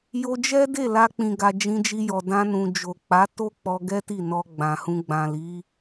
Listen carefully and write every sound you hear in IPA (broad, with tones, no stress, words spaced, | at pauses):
jo˧d͡ʒɛ˦de˦˨la˧ k͡pĩ˨ɡa˨ d͡ʒĩ˧d͡ʒi˧jɔ˨ dã˧nũ˨d͡ʒo˨ k͡pa˨˦to˦ k͡pɔ˧ɡɛ˦ti˦˨ nɔ˧ ɡ͡bã˨hũ˧ ɡ͡bã˨li˨˦